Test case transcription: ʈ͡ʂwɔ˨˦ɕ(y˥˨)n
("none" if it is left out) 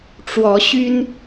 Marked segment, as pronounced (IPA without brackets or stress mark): y˦